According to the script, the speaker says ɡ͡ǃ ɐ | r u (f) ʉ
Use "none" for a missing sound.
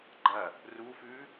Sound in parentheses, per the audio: f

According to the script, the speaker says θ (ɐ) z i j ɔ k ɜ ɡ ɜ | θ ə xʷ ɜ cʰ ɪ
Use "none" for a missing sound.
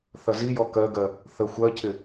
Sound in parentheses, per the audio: ɐ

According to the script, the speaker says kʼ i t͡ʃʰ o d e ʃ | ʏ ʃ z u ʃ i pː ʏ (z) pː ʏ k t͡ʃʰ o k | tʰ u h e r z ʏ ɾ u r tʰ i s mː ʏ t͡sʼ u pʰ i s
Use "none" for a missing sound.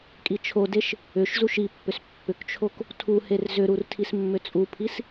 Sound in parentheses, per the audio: s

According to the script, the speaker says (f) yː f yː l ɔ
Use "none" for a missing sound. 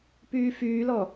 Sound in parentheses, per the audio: p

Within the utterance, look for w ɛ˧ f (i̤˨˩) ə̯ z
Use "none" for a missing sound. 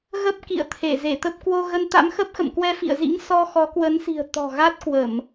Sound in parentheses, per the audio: ḭ˧˨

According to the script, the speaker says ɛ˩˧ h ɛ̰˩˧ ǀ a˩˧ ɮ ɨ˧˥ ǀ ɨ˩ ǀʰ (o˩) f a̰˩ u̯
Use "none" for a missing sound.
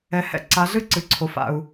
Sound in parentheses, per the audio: o˩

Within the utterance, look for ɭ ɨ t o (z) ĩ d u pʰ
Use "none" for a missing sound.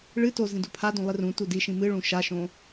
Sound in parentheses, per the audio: z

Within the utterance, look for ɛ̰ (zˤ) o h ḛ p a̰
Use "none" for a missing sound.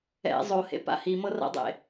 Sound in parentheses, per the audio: zˤ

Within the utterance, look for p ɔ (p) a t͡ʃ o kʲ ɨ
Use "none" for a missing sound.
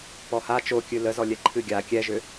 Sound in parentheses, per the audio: h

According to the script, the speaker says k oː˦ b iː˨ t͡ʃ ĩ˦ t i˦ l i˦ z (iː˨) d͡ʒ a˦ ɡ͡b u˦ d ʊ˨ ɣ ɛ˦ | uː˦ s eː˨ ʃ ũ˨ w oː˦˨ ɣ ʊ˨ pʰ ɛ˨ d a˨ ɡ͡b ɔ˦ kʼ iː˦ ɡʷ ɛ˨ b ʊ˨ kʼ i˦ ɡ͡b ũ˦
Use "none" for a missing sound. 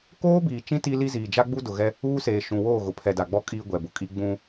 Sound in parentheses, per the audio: iː˨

